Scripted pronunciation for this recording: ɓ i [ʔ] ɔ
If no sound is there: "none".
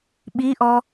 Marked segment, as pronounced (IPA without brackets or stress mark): ʔ